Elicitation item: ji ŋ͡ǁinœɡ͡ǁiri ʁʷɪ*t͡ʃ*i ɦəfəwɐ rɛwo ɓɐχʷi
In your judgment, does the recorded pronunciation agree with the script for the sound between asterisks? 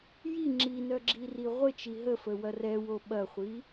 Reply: yes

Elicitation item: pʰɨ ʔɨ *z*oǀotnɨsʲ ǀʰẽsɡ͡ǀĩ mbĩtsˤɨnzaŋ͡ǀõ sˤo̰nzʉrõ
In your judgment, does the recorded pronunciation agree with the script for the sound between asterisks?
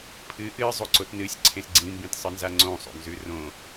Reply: no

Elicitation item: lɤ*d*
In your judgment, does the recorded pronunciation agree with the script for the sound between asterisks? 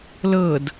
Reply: yes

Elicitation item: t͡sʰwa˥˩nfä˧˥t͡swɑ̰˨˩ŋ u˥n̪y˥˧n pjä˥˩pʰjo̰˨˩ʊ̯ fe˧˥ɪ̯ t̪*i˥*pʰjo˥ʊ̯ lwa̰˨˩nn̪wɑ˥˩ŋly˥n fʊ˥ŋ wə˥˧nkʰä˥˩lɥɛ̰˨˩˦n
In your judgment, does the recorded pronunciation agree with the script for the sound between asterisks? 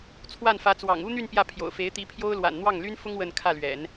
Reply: no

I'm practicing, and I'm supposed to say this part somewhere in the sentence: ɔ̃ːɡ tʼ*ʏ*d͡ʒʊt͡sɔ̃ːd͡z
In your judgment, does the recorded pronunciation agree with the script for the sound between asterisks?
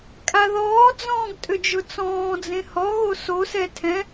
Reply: yes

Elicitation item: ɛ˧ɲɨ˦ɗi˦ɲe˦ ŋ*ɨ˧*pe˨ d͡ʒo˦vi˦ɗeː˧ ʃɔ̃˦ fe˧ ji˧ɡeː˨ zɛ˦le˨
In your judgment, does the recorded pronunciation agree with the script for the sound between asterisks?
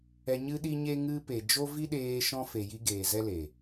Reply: yes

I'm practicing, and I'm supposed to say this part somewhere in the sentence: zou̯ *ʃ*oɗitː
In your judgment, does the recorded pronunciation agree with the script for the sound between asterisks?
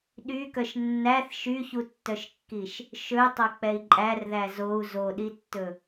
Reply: no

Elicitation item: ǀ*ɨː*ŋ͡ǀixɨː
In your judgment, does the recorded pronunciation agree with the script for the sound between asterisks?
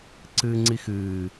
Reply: yes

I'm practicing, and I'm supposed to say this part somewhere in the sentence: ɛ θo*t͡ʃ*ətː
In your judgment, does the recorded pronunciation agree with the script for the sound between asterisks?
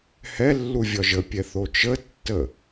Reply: yes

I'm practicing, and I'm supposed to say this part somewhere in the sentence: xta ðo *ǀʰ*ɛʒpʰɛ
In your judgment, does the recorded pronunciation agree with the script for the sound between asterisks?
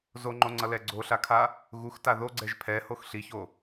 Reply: no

